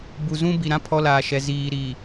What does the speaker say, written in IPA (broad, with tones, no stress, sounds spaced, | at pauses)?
b u˨ z ũ˦ b i˨ ɾ ã˦ pʰ ɔ˦ l aː˨ ʃ ɛ˨ z iː˨ ɾ iː˨